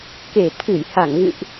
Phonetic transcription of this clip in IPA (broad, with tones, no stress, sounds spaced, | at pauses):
k e˨˩ t̪ʰ ɨ˧˩ j h a˧˩ ŋ ɣ ɨ̰˧˨ ʔ